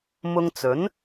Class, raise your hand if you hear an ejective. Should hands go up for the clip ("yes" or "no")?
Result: no